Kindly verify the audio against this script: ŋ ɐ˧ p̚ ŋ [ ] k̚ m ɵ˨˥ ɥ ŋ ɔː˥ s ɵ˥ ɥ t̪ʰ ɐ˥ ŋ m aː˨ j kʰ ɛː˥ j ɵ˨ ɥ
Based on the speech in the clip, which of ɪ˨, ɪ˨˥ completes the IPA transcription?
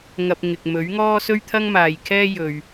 ɪ˨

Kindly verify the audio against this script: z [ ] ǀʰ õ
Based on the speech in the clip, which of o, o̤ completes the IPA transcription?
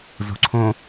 o̤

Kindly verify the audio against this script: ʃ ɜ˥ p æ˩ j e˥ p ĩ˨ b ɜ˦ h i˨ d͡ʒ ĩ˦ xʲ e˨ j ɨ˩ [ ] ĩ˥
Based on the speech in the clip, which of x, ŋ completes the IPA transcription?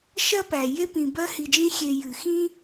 x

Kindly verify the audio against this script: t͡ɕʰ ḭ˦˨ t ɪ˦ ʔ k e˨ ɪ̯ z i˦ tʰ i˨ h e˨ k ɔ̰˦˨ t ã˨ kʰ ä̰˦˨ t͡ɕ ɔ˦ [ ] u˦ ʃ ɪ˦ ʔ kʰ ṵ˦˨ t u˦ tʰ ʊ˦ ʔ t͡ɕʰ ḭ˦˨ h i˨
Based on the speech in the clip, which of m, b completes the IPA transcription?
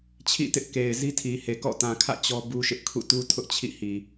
b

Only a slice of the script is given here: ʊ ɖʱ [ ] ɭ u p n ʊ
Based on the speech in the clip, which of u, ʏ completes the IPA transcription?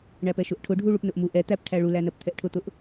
u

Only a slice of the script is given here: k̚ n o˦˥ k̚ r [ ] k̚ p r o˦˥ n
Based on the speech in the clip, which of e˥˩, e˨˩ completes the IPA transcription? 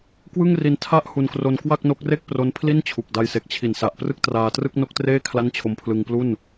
e˥˩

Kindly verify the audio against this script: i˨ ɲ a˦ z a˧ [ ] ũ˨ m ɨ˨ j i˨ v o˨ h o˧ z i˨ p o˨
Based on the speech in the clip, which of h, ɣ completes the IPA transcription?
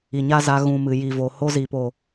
ɣ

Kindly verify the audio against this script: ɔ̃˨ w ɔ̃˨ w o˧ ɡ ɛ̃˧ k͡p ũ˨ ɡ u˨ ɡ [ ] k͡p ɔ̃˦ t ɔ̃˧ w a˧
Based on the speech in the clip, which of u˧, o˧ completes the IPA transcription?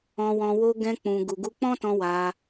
u˧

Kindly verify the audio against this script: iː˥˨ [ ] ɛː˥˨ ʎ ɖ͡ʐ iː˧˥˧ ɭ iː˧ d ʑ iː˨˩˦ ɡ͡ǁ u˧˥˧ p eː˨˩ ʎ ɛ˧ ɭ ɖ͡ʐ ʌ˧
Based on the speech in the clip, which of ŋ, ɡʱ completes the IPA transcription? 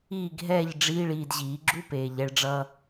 ɡʱ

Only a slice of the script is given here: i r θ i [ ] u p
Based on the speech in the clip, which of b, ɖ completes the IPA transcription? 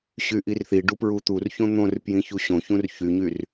ɖ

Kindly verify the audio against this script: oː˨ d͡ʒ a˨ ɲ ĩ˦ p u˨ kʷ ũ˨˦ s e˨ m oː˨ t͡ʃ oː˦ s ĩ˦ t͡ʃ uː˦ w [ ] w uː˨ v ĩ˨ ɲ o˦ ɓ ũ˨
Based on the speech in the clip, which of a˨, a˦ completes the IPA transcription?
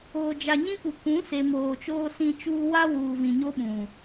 a˦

